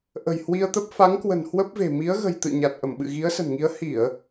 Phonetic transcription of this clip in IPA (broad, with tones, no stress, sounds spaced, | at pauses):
ʔ ə̤˨˩ j h w i˧ ə̯ t̪ ə˦˥ p̚ f a˨˦ ŋ k w ə̤˨˩ n h w ə˦˥ p̚ v e̤˨˩ m i˨˦ ə̯ ɣ ə̤˨˩ j t̪ ɨ̰˧˨ ɲ a˨˩ t̚ ʔ ə˧˩ m ɓ ɨ̰˧˨ ɣ i˨˦ ə̯ s ə̤˨˩ n ŋ i˨˦ ə̯ h i˧˩˨ ə̯